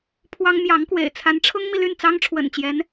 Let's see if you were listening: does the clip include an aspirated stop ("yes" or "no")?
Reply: yes